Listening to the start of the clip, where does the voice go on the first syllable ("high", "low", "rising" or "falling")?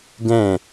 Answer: falling